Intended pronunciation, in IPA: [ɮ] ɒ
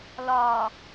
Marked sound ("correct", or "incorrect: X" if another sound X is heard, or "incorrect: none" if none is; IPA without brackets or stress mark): incorrect: l